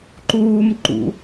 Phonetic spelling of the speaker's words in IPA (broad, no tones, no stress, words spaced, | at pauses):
ǃuːm ǃṵ